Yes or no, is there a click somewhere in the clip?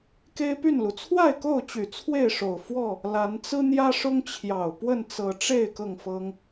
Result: no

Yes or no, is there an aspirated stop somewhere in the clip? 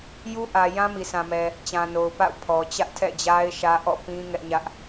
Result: yes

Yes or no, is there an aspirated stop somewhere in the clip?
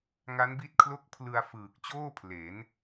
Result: yes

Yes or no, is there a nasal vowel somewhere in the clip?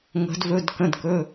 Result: yes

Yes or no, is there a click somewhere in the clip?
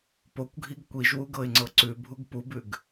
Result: yes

